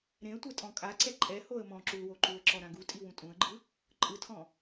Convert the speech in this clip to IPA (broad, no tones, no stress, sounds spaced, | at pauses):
ɾ ẽ ə̯ tʷ ɛ tʼ ɔ̃ kʼ a ǀ ɛ ǃʼ ɛ h o ə̯ m ɔ̃ ǁ u l w o ǃ u ə̯ ǁ ɔ ɾ ã ɡ u tʼ i w ũ tʼ ũ ə̯ ɡ͡ǃ ɯ | ǃʼ ɯ tʰ ɔ̃